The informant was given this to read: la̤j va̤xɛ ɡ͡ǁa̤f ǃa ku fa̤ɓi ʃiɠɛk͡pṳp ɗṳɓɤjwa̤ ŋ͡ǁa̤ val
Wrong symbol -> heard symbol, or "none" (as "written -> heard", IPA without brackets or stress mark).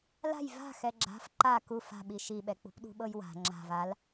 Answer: ɠ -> ɓ